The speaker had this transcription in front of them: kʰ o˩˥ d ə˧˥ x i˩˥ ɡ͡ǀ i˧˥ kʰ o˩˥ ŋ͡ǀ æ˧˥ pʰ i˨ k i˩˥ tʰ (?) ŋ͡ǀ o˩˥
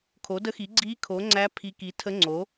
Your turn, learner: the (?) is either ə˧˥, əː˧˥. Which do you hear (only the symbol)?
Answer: ə˧˥